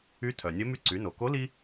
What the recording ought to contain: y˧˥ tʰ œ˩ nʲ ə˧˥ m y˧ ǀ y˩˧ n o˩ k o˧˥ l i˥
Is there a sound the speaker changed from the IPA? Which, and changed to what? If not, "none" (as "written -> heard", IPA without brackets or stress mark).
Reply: none